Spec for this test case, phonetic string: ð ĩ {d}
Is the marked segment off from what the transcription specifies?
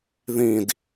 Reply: no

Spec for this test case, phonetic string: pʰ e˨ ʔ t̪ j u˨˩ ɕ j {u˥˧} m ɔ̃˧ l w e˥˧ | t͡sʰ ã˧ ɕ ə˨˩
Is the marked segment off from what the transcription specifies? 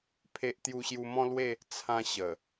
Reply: yes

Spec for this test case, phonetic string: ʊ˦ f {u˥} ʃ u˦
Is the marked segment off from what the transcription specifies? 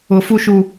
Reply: no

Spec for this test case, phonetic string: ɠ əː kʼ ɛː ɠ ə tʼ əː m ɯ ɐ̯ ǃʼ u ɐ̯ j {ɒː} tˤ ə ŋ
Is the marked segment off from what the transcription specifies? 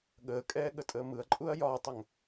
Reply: no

